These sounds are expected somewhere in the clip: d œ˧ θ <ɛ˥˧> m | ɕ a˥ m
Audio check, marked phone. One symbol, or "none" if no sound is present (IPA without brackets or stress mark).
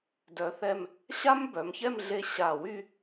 ɛ˥˧